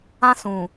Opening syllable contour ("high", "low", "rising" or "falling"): high